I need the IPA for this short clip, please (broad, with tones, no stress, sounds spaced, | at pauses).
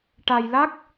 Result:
ʈ a˧ j l a˦˥ k̚